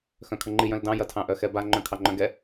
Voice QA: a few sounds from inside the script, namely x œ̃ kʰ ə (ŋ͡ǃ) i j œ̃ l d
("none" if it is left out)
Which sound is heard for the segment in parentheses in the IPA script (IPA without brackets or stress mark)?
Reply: ŋ͡ǃ